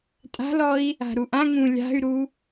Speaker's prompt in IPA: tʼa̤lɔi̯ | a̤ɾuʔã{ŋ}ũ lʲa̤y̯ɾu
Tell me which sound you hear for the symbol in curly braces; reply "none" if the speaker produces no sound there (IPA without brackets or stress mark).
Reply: ŋ